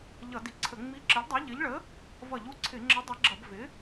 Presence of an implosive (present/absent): absent